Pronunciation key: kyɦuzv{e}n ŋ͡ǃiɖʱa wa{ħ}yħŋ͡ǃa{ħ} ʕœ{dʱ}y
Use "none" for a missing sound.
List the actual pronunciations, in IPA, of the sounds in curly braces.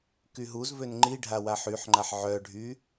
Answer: ø, ħ, ħ, ɖʱ

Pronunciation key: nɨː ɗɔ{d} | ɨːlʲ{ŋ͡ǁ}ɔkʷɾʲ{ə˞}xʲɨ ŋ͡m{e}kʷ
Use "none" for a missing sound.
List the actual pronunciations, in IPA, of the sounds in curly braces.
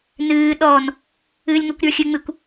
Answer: n, ŋ, ə˞, ɨ

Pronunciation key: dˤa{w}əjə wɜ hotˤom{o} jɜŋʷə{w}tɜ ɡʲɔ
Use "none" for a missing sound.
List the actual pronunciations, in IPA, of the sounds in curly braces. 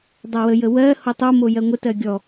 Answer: w, o, none

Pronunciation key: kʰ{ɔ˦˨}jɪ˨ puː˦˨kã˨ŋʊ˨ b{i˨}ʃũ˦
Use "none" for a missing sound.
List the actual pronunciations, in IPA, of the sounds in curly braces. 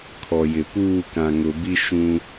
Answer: ɔ˨, i˦

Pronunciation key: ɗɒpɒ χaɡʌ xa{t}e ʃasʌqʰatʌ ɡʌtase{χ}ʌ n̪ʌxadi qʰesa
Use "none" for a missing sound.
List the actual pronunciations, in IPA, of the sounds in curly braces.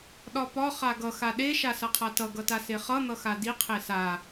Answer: ɗ, χ

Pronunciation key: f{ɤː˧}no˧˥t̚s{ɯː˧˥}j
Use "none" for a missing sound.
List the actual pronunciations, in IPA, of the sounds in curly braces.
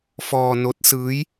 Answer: ɔː˧, ɯː˧˥

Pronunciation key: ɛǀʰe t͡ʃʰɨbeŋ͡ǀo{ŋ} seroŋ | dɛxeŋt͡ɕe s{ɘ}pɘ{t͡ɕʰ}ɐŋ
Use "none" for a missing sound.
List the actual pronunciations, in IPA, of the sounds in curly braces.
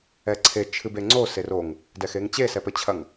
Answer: none, ɛ, t͡ɕʰ

